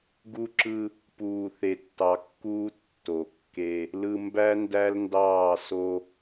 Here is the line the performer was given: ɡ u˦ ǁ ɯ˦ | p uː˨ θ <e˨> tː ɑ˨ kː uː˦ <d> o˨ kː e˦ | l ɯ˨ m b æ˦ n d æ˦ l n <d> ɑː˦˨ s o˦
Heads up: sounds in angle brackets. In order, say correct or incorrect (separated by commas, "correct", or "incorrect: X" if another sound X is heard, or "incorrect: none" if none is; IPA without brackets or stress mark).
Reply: correct, incorrect: tː, correct